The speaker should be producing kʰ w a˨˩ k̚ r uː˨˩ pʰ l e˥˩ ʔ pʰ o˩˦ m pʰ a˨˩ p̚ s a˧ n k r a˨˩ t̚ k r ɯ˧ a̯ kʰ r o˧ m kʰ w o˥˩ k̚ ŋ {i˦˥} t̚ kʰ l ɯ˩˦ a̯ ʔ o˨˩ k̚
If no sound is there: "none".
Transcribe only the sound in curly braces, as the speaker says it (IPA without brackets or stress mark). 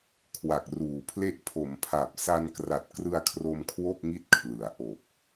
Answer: i˦˥